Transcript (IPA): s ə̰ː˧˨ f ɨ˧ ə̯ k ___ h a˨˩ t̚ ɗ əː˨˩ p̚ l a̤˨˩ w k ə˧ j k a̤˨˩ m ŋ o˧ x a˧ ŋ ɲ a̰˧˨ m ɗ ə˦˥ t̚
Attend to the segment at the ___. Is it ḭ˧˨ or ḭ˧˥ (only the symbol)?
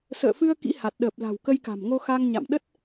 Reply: ḭ˧˥